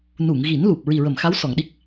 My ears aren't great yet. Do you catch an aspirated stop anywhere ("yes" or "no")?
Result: no